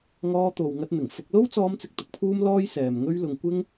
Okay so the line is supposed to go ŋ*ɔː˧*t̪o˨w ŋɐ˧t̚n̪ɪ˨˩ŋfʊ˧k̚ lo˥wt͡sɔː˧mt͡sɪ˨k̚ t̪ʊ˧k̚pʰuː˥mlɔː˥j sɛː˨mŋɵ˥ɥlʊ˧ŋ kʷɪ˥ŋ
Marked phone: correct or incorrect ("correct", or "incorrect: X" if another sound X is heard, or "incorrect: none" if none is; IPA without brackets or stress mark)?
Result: correct